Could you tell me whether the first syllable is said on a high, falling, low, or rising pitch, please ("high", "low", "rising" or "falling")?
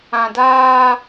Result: low